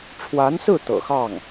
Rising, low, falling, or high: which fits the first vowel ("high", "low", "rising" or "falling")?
rising